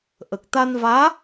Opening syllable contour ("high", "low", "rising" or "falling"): low